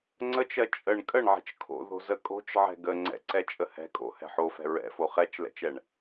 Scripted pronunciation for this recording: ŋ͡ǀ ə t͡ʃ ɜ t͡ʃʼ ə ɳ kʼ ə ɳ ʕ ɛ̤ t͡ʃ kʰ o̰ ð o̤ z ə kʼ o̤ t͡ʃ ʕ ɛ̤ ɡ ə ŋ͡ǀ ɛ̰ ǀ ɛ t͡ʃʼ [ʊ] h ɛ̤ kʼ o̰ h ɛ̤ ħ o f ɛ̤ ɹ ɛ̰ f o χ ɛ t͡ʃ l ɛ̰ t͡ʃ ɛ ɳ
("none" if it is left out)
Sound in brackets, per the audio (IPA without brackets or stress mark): ə